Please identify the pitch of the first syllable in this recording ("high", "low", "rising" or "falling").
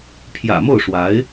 low